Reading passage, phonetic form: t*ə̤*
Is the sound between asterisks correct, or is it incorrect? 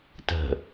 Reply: correct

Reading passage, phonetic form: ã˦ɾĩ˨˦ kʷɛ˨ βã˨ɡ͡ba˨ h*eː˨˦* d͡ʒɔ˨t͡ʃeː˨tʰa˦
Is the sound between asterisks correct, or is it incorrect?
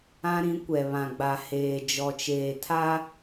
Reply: incorrect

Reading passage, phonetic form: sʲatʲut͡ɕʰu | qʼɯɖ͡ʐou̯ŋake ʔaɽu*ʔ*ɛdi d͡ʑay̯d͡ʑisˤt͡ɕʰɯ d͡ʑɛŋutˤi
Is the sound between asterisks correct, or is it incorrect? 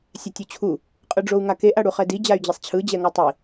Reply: incorrect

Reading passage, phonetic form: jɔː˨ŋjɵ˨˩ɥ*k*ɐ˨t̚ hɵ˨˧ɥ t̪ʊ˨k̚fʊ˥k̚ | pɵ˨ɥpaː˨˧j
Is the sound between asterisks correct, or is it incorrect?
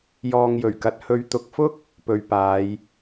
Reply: correct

